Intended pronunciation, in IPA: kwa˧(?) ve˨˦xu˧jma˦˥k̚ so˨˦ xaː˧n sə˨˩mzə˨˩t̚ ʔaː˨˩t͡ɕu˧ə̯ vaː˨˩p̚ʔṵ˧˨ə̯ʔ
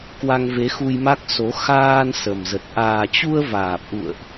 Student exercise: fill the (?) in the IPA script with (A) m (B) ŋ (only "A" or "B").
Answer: B